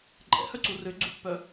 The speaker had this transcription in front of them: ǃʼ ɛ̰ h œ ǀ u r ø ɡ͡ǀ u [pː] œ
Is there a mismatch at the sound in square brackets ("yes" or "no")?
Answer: no